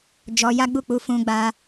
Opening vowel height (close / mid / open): mid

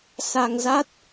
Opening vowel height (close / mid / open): open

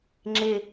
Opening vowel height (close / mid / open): close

